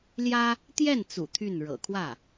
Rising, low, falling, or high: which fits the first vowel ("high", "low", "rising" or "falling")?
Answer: high